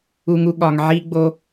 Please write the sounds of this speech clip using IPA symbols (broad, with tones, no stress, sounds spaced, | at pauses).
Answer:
u˨ ŋ u˨ ɠ ɒ˨ ŋ ʕ i˧ ɡ͡b o˧